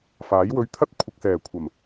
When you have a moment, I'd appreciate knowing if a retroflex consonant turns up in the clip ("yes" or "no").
no